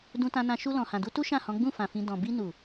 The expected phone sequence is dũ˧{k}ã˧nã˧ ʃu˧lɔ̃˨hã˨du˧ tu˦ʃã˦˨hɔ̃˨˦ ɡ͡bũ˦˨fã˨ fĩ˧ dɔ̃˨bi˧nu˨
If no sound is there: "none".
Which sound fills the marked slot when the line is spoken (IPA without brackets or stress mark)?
t